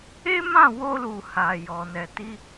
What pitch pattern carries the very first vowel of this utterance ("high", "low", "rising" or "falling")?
high